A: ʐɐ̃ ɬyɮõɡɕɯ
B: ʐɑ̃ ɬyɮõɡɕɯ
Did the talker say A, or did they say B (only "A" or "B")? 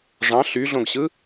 B